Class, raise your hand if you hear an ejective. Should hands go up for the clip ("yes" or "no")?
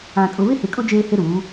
yes